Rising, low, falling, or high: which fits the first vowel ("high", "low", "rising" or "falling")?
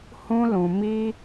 high